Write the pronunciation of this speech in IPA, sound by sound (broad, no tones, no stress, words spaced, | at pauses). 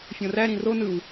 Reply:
fʲõræ ɾĩro nɯw